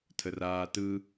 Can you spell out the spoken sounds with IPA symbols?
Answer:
tʰ ə r aː t ɯ

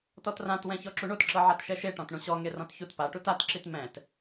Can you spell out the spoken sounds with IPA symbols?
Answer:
t ɔ t r ã t w ɛ̃ ç ɔ ǁ u ɳ o t ǁ ɤ ʕ a t ʃ ɛ ʃ e ʈ ɔ̃ t ɳ ũ ɕ ɔ ŋ e r ɔ̃ t ç u t p a ʈ u t a t ǁ i t m ɛ̃ t

